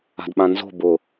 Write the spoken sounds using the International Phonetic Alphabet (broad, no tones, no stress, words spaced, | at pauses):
a̤dɓãnzo̤ bʊ